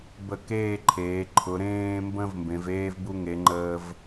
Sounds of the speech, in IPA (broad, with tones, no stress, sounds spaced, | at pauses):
b ə˧˩ k eː˥˧ ǃʰ eː˩˧ ǃʰ ʊ˩˧ ɾ ẽː˧ m b ə̃˧ v m b ẽ˩˧ v eː˥ v b u˥ ŋ e˩˧ ŋ͡ǃ əː˧ v